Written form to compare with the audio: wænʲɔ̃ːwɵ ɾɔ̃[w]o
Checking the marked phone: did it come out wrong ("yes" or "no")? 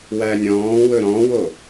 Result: no